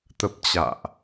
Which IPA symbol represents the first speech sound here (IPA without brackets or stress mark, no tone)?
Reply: t̪